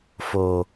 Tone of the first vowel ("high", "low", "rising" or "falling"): low